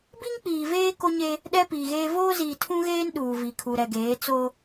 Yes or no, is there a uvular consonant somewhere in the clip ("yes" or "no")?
no